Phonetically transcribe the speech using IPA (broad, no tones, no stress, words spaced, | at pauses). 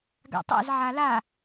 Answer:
ɡa̰tˤɛ̰z ʕala